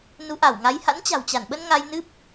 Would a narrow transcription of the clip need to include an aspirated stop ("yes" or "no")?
no